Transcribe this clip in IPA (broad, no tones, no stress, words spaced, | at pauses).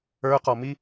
ə˞qɔmi